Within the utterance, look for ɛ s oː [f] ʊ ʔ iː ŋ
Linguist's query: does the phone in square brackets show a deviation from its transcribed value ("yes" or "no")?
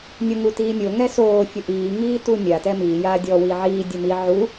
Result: yes